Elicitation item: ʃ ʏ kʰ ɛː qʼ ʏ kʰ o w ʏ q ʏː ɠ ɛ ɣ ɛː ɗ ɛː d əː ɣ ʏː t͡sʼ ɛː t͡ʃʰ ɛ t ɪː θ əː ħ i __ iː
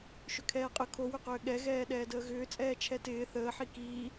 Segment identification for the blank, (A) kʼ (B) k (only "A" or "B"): B